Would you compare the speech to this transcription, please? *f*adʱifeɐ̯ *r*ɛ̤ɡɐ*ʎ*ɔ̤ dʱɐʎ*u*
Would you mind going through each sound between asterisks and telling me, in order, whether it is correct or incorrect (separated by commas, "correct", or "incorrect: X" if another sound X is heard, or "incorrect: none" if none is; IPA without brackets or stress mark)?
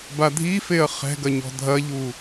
incorrect: b, incorrect: χ, incorrect: ɲ, correct